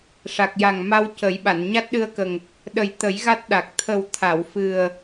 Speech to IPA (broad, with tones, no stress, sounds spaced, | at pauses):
ʂ a˨˩ k̚ j a˨˩ ŋ m a˧ w c ə˨˩˦ j ɓ a˨˩˨ n ɲ a˦˥ t̚ ɗ ɨ˧ ə̯ k ə˨˩ ŋ | ɗ ə˨˩ j t̪ ə˨˩˦ j ɣ a˦˥ t̚ ɗ a˨˩ k̚ t̪ʰ ə˨˩ w t̪ʰ a˨˩˨ w f ɨ˨˩ ə̯